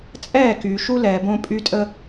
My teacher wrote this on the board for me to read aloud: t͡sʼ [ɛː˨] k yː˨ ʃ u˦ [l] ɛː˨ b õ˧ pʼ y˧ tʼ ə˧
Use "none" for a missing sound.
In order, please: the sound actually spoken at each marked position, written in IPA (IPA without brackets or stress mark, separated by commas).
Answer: ɛː˦˨, l